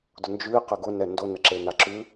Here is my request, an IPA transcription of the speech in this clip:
d ʊ n d͡ʒ ʉ i̯ q ɘ ɡ ʊ n ɛ n d o n ə ǁ e n a ǁ ʉ

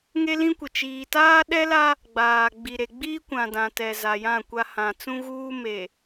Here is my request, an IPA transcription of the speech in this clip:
ŋ e˦ l ĩ˦ kʷ ɪ˨ t͡ʃ iː˨ t aː˦ ɗ ɛ˦ l a˦ | ɡ͡b aː˨ ɡ͡b i˨ ɾ e˨ ɡ͡b iː˦ kʷ ã˨ d ã˨ t ɛ˨ z a˨ j ã˦˨ kʷ a˦ h ã˨ t͡s ũ˦ ɣ uː˦ m e˨

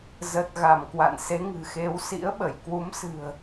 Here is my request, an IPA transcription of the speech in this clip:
z ə˨˩ t̚ ɣ a˧˩ m k w a̰˧˨ n s e˨˦ ŋ ɨ̤˨˩ x e˨˦ w s ḭ˧˥ ə̯ ɓ ə˧˩ j k w u˨˦ m s ɨ̤˨˩ ə̯

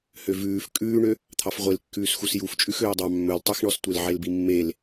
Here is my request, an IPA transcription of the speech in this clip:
h ø v ʉː f kʼ ʉː ɳ ø | t̪ʰ ɑ f ʁʷ e l kː ʉː s x u s j u f t͡ʃʼ ʉ x øː dˤ ɑ mː ɵ l tˤ y x ɳ ɔ s tʷ e l ʕ e l b i mː e l

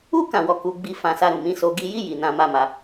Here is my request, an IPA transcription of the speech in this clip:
u˦ k ã˦˨ w ɔ˧ k u˧ ɡ͡b i˦ f ã˧ s a˧ ɾ ũ˨ m ĩ˨˦ s o˧ ɡ i˧ j i˦ j i˧ n ã˦ m a˦˨ m a˧

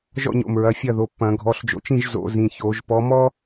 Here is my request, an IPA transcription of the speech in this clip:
ʒ ɔ̰˥˨ ɲ o̰˧˩ m ɹ ɐ˩˧˩ fʲ ɐ˥˨ ð o˩˧˩ pː ɐ̃˧˩˧ ɡʱ ɔ˩˧˩ ɬ d͡ʒ o̰˨˦ t͡ʃ ĩ˥˨ ʒ z o̰˧˩˧ z ĩ˩˧˩ ç o˧˩˧ ʒ p ɔ˨˦ m ɔ˥

